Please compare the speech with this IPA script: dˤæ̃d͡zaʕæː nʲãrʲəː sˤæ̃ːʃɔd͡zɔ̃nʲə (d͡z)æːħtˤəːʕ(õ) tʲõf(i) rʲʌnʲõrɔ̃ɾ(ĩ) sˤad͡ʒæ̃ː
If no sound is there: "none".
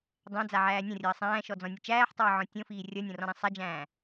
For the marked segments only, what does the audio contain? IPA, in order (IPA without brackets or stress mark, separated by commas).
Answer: t͡ʃ, ɔ̃, iː, ĩ